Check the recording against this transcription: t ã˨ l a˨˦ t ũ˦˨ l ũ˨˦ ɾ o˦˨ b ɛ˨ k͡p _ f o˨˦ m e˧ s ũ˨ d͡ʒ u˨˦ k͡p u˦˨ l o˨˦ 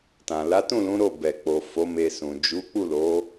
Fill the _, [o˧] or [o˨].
o˨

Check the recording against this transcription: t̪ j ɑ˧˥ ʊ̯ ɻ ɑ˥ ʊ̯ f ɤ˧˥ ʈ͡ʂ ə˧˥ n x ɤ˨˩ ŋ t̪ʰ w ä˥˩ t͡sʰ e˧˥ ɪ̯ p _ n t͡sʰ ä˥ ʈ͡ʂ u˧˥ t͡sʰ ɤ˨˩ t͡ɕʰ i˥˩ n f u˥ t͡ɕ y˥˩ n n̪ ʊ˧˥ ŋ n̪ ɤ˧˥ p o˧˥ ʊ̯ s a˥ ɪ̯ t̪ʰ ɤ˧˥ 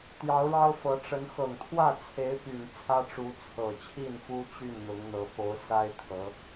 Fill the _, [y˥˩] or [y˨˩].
y˨˩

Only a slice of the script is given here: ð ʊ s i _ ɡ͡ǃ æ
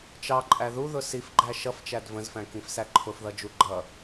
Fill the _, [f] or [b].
f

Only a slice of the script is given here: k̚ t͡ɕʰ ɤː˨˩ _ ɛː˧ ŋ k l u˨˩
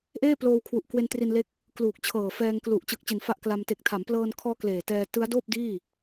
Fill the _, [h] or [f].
f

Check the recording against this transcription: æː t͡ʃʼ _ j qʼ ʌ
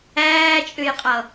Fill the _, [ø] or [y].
ø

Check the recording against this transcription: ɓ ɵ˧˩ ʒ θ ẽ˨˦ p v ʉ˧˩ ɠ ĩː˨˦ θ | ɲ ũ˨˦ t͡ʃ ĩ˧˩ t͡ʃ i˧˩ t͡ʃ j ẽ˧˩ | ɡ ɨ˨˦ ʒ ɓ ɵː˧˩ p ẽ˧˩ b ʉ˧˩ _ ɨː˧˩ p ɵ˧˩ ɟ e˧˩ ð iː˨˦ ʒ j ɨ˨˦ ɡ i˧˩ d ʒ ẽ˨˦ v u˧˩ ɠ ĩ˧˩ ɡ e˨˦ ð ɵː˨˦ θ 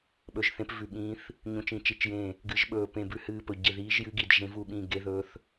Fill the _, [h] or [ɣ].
h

